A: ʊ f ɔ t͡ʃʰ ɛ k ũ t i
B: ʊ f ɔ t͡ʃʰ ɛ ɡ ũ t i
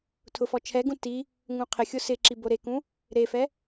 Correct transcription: B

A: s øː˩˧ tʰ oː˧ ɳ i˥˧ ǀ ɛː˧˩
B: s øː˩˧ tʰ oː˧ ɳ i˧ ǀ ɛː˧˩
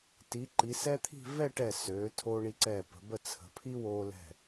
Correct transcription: B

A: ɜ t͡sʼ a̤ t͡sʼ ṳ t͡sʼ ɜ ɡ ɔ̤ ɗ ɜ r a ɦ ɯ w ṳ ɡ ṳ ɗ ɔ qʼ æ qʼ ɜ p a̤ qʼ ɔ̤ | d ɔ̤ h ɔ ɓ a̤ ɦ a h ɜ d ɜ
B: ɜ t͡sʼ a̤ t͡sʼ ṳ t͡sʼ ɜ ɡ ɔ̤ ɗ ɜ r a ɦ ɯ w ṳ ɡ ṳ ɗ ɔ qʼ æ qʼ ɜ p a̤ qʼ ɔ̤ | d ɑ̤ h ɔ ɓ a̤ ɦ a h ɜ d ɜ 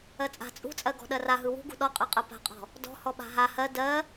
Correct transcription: A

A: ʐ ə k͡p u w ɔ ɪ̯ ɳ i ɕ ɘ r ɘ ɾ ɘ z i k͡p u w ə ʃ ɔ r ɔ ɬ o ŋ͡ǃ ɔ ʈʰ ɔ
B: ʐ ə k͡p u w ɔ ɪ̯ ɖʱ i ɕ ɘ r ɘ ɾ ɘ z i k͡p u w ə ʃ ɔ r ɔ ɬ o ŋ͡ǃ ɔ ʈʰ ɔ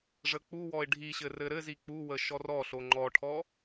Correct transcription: B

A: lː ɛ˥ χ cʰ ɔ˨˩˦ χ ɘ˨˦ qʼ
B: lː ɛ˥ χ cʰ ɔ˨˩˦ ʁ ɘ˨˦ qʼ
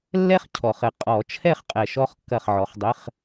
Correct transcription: A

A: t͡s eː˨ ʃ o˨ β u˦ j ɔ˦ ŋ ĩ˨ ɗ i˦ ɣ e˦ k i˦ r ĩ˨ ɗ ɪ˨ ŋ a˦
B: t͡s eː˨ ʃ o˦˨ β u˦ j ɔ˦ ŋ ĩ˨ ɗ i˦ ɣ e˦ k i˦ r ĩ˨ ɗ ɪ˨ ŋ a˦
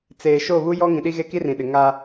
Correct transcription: B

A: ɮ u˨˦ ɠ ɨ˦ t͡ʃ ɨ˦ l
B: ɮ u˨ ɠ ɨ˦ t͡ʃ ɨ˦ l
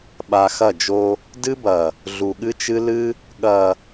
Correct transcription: B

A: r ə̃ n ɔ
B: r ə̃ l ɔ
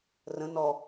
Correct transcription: A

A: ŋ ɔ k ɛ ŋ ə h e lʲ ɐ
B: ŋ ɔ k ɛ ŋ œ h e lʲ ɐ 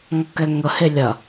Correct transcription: A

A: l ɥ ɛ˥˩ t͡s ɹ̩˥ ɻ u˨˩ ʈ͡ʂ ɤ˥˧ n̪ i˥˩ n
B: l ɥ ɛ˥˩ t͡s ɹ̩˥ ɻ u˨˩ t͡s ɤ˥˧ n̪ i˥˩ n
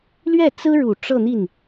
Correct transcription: A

